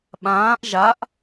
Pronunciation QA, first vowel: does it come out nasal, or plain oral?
nasal